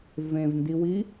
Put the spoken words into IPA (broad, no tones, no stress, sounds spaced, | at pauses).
v ẽ v n d i w i